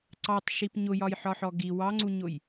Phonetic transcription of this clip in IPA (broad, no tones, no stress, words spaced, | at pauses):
ǀɑtˤʃip ɲʊjɒjħɒħɔ ɡi wɑŋ͡ǀuɲʊj